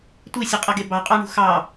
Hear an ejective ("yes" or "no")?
yes